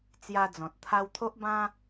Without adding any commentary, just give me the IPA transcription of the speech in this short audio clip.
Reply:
t͡s j a˧ d͡z ɔ̃˨ t̚ t̪ʰ a˧ w t̪ʰ o˦ ʔ b ã˦

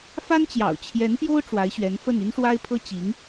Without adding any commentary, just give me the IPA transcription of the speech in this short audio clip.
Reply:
f a˥ n t͡ɕ j ɑ̰˨˩ ʊ̯ t͡ɕʰ j ɛ˧˥ n p j o˥ ʊ̯ ʈ͡ʂ w a˧˥ ɪ̯ ɕ ɥ ɛ˧˥ n f ə˥˩ n y˥ n ʂ w a˥ ɪ̯ pʰ ɤ˥ t͡ɕ i˧˥ ŋ

